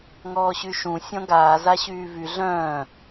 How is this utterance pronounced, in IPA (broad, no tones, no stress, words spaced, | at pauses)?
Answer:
ŋɔːɕyʃũ sʲɔ̃ɡaː zaɕyːvy ɮœ̃ː